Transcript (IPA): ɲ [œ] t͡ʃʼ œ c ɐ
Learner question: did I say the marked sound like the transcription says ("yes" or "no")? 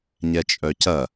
no